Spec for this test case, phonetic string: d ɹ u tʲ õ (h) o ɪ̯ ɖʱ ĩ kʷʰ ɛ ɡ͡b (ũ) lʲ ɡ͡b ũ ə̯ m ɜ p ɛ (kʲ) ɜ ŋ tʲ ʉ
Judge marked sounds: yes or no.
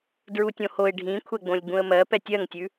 yes, no, no

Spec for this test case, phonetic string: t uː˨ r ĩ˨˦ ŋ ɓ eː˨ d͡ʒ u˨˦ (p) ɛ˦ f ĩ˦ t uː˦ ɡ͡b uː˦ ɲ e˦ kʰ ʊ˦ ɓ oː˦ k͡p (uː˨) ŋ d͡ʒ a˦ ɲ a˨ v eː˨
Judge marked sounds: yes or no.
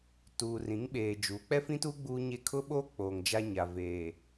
no, no

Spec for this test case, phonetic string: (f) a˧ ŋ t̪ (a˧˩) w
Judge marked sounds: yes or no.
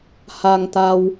no, no

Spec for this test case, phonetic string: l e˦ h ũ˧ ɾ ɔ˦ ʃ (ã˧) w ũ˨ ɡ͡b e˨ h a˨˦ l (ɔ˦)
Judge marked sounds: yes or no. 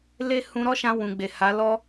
yes, yes

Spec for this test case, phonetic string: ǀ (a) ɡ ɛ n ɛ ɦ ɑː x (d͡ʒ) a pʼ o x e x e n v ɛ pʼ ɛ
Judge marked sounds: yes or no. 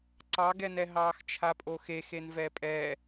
no, no

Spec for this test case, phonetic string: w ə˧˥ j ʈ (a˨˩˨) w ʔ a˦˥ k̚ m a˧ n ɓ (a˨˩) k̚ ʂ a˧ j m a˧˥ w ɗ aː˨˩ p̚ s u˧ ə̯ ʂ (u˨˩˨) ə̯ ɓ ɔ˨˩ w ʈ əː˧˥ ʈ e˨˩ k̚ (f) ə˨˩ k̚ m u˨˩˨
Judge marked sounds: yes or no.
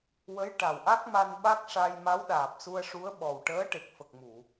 no, no, no, yes

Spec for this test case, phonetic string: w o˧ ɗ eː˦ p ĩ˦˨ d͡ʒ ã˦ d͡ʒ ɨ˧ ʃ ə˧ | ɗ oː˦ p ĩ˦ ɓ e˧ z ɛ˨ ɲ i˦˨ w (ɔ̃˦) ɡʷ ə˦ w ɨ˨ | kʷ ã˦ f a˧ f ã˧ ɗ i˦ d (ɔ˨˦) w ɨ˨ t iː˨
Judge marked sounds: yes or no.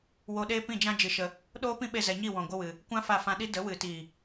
no, no

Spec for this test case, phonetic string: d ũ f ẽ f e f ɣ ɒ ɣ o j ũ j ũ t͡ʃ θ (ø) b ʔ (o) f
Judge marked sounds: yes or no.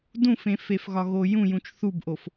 no, yes

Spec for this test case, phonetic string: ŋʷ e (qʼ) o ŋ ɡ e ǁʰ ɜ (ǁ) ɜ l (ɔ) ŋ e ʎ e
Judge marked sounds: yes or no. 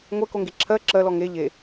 no, yes, yes

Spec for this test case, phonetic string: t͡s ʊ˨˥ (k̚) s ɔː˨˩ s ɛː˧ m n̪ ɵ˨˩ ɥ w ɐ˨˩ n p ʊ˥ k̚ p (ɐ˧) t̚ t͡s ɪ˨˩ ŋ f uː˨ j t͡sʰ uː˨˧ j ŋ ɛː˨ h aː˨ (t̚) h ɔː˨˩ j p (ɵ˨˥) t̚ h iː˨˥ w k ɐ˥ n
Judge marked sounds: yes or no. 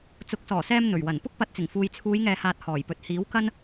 yes, no, yes, no

